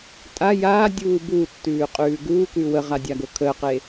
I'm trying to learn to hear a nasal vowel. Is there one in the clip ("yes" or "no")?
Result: no